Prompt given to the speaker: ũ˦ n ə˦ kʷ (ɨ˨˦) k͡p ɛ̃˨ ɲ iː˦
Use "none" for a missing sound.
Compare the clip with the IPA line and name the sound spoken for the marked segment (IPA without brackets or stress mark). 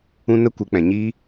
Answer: ɨ˨˦